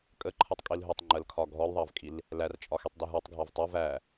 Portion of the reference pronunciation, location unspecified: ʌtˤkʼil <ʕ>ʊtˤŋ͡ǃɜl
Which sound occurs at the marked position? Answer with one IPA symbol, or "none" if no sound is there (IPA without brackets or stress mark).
ɦ